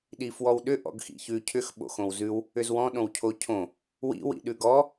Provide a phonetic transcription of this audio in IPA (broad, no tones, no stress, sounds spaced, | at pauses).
ɗ i f w ɔ w ɗ ʏ ʔ ɔ̰ ɡ x ḭ ç ʉ cʰ ʏ x ɓ o̰ x õ w z ʉ w | ʏ z w ɔ̃ ɗ õ w cʰ o cʰ õ | w ḭ w ḭ ɗ ʉ ɡ ɔ